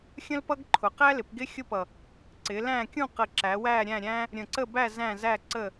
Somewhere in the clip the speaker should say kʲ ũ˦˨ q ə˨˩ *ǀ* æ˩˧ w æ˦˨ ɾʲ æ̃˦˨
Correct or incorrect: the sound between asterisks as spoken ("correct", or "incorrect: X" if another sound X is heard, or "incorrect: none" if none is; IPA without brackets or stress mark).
incorrect: ǁ